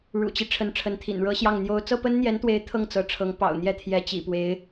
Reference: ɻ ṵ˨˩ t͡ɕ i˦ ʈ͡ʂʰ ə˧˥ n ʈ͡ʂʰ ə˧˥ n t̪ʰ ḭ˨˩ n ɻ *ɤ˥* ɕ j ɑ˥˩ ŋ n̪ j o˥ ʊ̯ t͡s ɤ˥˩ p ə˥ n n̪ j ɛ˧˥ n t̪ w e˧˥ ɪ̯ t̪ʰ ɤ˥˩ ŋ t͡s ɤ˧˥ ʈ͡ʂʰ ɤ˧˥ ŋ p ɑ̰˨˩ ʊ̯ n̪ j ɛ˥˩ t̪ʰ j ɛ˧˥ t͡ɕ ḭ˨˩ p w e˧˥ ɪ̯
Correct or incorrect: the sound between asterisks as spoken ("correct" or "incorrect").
correct